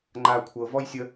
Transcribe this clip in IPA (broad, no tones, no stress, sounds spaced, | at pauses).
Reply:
ŋ͡ǃ a kʷʰ ɤ v ɔ j sʲ ə